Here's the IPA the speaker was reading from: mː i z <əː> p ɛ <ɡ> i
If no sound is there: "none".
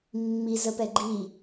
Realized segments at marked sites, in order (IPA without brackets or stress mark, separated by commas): ə, ɡ͡ǃ